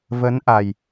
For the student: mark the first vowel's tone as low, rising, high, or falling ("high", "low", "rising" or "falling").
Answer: rising